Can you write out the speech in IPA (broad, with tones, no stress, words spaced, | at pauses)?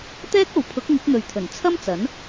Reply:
t̪ɛː˥k̚o˨wpʰʊ˨˥k̚ ŋɪ˨˥k̚n̪ɵ˨ɥt̪ʰɵ˨˩n t͡sʰɐ˥mt͡sɐ˨˥n